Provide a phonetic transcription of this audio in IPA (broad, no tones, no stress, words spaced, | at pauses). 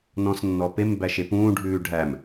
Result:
nɔ̃snːɔpem bæʃepũː ɖʱʉːɖʱæm